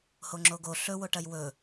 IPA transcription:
h o ŋ͡ǁ o ɡ o ɬ ɵ w o ʈ ɐ j w ɵ

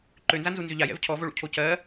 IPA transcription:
ǃ ø n z a n z u n z ʏ ʎ a j ɛ̰ v cʰ ɔ v o ɭ ṵ cʰ o c ɜ

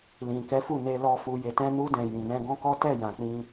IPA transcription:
l ĩ˨ k ɛ˨˦ f u˦˨ n e˧ l ɔ˧ f u˧ j e˧ t ɛ̃˧ n u˧ d ɛ̃˨ j ĩ˨ n ɛ̃˧ ɡ ɔ̃˦ k ɔ˦ t ɛ˦˨ j ã˨ k͡p ĩ˧

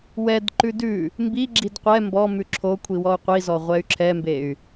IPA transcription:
w ɛ d ǃ ʉ d ʉ | m b i ɡ͡ǁ i d qʷ ɛ m b ɔ m ʉ ǁʰ o kʷʰ i w ɔ u̯ qʷ i z ɔ ʁʷ ɛ y̯ ǁʰ ɛ m b e y̯

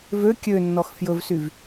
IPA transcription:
v ø kʲ ø nː ɔ x f j ɵ v s y v

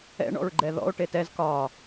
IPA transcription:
ɛ̰ ɳ ɔ̰ ɹ ɡ͡ǃ ɛ ð ɔ̰ o̯ ʈ e t ɛ z k ɒ

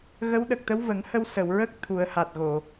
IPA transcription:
ɣ ə˧˥ w ɗ ə˨˩ k̚ t̪ ə˧˥ w v ə˨˩˦ ŋ h ə˧ w s ə˨˩˨ w ɹ ə˦˥ k̚ t̪ʰ u˨˩˦ ə̯ h a˨˩ t̚ ɣ o˨˩˨

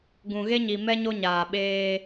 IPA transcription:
ɡ ũ˨ ɣ e˦ ɲ i˨ m ɛ˦ ɲ o˦ ɲ aː˨ ɓ eː˦

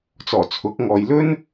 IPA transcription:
t͡s ɔː˨˩ t͡sʰ ʊ˨˥ k̚ ŋ ɔː˨ j l ɵ˥ n

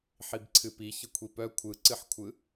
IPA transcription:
ħ i b ǀʰ ɨ p i ç ə kʷʰ i p œ kʷʰ ɯ ǀ ɨ ħ kʷʰ ɯ

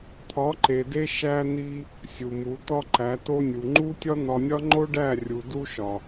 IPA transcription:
t̪ʰ ɒ˨˦ ǃ e˨ d e˧ ʃ æ˧ n̪ i˧ | sʲ u˨ m u˨˦ t̪ ɒ˦ ǃ æ˨˦ t o˧ nʲ u˨ ŋ͡ǃ u˦ tʲ ɒ˦ n̪ ɒ˨ nʲ ɒ˧ ŋ͡ǃ o˦ ɖ æ˦˨ rʲ u˨ d u˧ ʃ ɒ˨

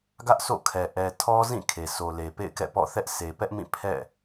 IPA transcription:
ɡ ä˦ ʔ sʰ o̰˦˨ kʰ ɛ˨ ʔ ɛ˨ tʰ ɔ˦ z ĩ˦˨ kʰ e˨ sʰ o˨ l e˨ p ḛ˦˨ ɪ̯ k ɛ̰˦˨ p ɔ̰˦˨ θ ɛ˦ ʔ s e˨ p ɛ˦ ʔ m ĩ˦˨ pʰ ɛ̰˦˨

